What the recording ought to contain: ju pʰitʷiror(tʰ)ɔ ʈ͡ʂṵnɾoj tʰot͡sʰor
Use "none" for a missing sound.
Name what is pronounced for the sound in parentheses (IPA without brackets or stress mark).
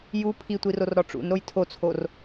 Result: ɾ